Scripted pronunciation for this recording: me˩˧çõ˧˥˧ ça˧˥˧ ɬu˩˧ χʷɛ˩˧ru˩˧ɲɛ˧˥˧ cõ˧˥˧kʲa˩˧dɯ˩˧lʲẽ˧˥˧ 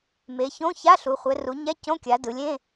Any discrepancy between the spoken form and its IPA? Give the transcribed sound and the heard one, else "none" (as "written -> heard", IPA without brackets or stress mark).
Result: none